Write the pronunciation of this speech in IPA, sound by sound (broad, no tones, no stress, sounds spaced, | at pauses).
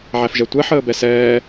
ʕ æ f ʒ ɛ tʷ ɛ ħ əː b ɛ s ɛː